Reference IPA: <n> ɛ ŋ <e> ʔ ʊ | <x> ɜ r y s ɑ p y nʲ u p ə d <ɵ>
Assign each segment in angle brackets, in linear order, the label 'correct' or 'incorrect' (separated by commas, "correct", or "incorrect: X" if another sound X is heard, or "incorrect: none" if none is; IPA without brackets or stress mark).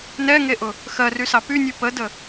correct, correct, correct, incorrect: ə